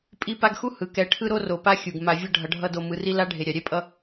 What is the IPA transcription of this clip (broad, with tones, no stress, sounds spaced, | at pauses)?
pʼ i˦ p a˦ ɡ x u˥ h ɯ˩ k ɛ˨ ʈʰ ɯ˦ ɾ o˦ r o˩ p a˦ xʲ u˩ ɡ m a˨ vʲ ʌ˦ ɖʱ ʌ˨ ɖʱ ʌ˦ d o˨ m ɯ˨ r i˦ l a˥ ɖʱ e˨ ɾʲ a˩ ɾʲ ɛ˥ pʼ ʌ˦